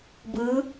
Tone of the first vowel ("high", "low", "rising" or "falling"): rising